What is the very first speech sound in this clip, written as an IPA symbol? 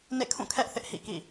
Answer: n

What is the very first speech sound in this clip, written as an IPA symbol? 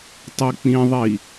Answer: tˤ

